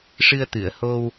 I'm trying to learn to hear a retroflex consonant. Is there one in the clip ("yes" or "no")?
yes